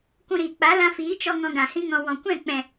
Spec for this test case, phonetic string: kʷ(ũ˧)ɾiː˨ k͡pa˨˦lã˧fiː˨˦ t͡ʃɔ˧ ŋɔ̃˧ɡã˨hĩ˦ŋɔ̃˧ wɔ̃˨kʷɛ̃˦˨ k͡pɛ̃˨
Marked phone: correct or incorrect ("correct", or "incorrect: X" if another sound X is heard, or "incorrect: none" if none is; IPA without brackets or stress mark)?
correct